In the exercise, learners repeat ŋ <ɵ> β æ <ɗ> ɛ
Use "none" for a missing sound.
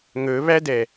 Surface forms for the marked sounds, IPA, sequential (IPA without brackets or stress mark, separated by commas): ɵ, d